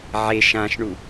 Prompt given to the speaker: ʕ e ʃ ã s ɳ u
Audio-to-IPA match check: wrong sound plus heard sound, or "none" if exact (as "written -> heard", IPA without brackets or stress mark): s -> ʃ